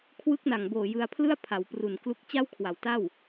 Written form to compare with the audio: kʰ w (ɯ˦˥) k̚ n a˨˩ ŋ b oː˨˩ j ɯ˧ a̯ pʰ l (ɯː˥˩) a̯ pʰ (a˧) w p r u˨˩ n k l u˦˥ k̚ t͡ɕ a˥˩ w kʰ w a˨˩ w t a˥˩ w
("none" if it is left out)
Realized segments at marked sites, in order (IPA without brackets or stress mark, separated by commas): ɯ˦˥, ɯ˥˩, a˩˦